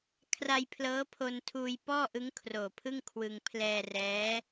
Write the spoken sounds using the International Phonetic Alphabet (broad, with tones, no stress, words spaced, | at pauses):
kʰra˧jpʰlɤː˦˥pʰo˧n tʰuː˧jpɔː˥˩ʔɯ˦˥ŋ kʰroː˨˩pʰɯ˥˩ŋ kʰwɯ˧ŋ pʰlɛː˧rɛː˦˥